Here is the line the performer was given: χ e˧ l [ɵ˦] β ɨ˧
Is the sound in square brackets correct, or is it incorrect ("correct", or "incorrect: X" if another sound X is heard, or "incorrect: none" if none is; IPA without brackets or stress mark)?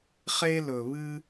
incorrect: ɵ˨